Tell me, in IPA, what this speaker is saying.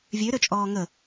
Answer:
vʲøɾøt͡ʃʼɔː ŋə

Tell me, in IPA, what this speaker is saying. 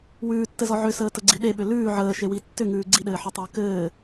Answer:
wʉːtːɘzɔ ʕʏsəːtəɡ͡ǀi ɗeɓʏ lʉː ʕəːʃewi tːʏŋʉː ɡ͡ǀiɗɘːħɔtˤəː kɘː

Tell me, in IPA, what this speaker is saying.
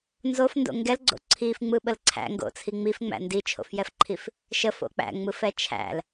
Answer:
nzofndo̰ ŋɡɛlɡ͡ǀo̰ ǀʰifŋ͡mɯɓəl ǀʰæ̰ŋɡo̰t͡sʰi ŋ͡mifŋ͡mæ̰ ndit͡ʃʰo̰fjɛfǃʰif | ʃəfo̰ k͡pæ̰ŋ͡mɯfɛ t͡ʃʰæ̰l

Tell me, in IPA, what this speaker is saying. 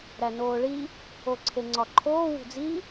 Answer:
ɾænoːɭi | oǀʰeŋ͡ǀɒǃʰoː wṳd͡zi

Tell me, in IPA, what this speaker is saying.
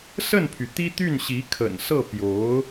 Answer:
sə˥˩npʰy˩ t̪i˥t̪y˥˩nɕi˧˥kʰə̰˨˩n sɤ˥˩ pjo˧˥ʊ̯

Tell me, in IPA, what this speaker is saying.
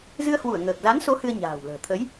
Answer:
zɨ˧ə̯hwu˧˩ə̯ ŋəː˨˩k̚za˨˦nso˨˦ hɨ˧ə̯ɲa̤ː˨˩wlə̤ː˨˩ t̪ʰə˨˦j

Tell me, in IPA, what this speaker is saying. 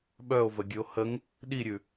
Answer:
ɓœo̯və ɡʲʉo̯həŋ | ɗiɾʲʉ

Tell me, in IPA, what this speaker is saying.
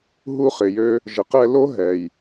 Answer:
ɦu˧χɪ˨jø˧ | ʒə˨qɛ˧lo˦ ɦɛ˨j

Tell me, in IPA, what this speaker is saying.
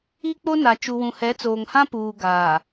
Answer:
i˦k͡po˦na˨ t͡ʃu˨wũ˨hɛ˨˦t͡soː˨ŋ hã˦puː˨ ɡaː˨

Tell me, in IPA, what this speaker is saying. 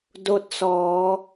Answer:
do˧t̚sɔː˩˧

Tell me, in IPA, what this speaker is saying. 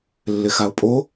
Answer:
lːɪxaʊ̯pʼo

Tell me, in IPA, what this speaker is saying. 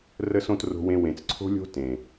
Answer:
rə˨sõ˨t ro̤˨wẽ˨ wẽ˨t͡sǀʰo̤˦lʲo̤˦ tẽ˨

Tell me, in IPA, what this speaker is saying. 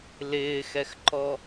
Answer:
lɪːxɛxǃɔ

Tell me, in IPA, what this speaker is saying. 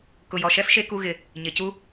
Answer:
kʊ˩jɔ˩ʃɛ˧fʃe˧ ku˧ɣɪ˩ | ɲɪ˩cu˧

